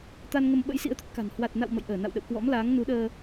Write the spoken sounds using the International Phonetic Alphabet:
t̪a˧nŋə˧m ɓə̰˧˥jsḭ˧˥ə̯t̪ə˦˥t̚ ka̤˨˩n hwa˨˩t̚na̰˧˨w mə̰˧˨jʔəː˧˩na̰˧˨wɗə̰˧˨w kwɔ̰˧˥mlaː˨˦ŋnu˨˦ɗəː˧

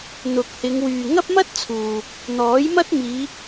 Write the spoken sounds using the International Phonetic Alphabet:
n̪ʊ˨k̚hɪ˨˧ŋ wyː˨ŋɐ˥p̚mɐ˥t̚ t͡sʰuː˨ | n̪ɔː˨˥jmɐ˥t̚miː˨˧

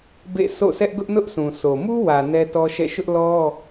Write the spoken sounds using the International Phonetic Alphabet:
bḛ˦˨ so̰˦˨sʰɛ˦ʔ ɡʊ˦ʔnʊ˦ʔ sʰũ˨sʰo˨ mu˦wä˨ nɛ˦tɔ˦ʃɛ̰˦˨ ʃʊ˦ʔlɔ˦

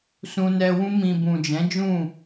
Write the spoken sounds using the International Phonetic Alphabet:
sũ˧nɛ˧wũ˦ mĩ˧ bũ˨d͡ʒɛ̃˨˦d͡ʒũ˦˨

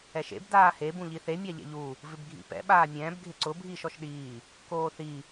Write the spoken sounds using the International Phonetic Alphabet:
ɛʃḛb daːhe bũʎiθe mʲaʎɛ̰ʎu | vɪbɡʱḭpɛ̰ ɓaːmʲɛ̃ːb ɡʱɪǀʊ bʱiːʃɔʃɗiː | koːθi

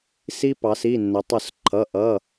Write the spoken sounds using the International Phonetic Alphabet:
si˦pɑ˩˧si˩˧˩ nːə˩˧tˤʊ˧˩s ǃʰʌ˩˧˩ʔʌ˩˧˩

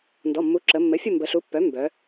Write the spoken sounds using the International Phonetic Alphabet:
ndɔ˩˧˩mːu˩˥ǁə˩˧ mːɘ˩˥fʲə˦˨ mbə˩˧ɬu˩˥pːœ˩˥ mbœ˩˧

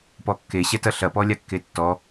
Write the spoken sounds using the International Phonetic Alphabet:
pɔkːeɕɛtɐ ɬɐpɔlʲakːe tːɔ

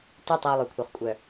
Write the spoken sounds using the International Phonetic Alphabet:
ty˧ tˤe˧ʊ̯lˠø˨kʷʰœ˨χ kʷʼœ˨

